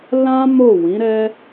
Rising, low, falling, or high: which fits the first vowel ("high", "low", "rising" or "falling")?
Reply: high